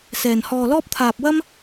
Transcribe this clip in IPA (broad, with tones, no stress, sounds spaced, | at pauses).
s ɛː˨ n h ɔː˧ l ɔː˥ p̚ t̪ʰ aː˧ p̚ w ɐ˥ m